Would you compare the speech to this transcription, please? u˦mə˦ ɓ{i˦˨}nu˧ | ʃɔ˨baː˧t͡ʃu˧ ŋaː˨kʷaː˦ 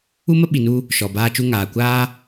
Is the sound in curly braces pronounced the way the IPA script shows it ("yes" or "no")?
no